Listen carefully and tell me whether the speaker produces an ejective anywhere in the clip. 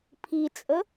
yes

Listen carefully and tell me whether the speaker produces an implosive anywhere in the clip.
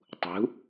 no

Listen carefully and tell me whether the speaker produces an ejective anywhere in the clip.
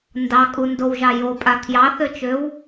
yes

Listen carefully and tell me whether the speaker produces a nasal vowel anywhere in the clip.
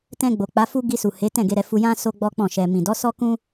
yes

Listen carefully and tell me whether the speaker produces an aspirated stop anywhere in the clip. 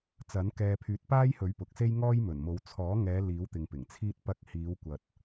yes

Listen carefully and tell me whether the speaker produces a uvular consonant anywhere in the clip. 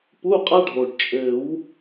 yes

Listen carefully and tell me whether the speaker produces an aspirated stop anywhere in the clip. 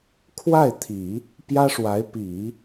yes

